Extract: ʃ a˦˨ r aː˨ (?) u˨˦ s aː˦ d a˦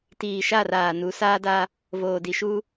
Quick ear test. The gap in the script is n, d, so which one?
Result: n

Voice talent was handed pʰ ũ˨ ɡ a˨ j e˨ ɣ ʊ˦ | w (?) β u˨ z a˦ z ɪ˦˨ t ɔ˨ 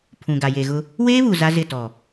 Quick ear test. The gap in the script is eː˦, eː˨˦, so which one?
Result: eː˦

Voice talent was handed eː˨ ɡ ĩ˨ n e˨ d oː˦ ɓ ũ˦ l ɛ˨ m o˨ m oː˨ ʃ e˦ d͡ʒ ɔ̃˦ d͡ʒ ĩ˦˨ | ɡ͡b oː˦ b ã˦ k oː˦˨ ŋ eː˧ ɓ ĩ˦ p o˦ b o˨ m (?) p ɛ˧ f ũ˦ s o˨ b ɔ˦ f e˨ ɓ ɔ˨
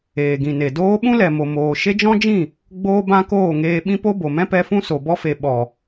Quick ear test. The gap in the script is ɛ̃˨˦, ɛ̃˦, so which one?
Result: ɛ̃˦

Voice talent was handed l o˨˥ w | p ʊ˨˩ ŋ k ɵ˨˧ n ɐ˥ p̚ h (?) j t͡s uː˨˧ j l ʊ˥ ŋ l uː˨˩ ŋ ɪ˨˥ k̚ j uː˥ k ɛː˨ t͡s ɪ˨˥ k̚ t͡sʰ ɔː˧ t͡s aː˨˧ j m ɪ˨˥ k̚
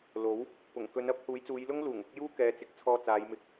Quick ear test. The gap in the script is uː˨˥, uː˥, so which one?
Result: uː˨˥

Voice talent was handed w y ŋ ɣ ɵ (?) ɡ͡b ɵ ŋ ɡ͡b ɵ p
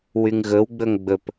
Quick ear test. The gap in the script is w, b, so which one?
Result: w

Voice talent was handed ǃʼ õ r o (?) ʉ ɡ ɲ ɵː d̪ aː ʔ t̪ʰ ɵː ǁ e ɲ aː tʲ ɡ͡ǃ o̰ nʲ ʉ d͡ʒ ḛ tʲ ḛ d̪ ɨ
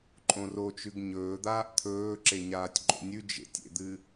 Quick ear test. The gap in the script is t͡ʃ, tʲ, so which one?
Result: t͡ʃ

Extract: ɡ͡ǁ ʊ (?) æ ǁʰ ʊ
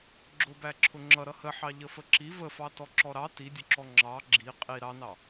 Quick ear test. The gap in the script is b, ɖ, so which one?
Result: b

